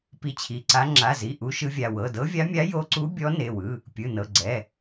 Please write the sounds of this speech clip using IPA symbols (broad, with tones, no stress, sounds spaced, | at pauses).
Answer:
p i˧˥ t͡ɕʰ i˩˧˩ ǀ a˧˥ ŋ͡ǁ a˩˧˩ z i˩˧˩ ʔ u˧˥ ʃ ɯ˧˥ vʲ a˩˧˩ w ɤ˩˧˩ d ɤ˧˥ vʲ a˧˥ mʲ a˧˥ j o˧˥ ǀ u˧˥ bʲ ɔ˧˥ n e˩˧˩ w ɯ˩˧˩ | pʲ ɯ˩˧˩ n ɤ˩˧˩ ɡ͡ǀ ɛ˩˧˩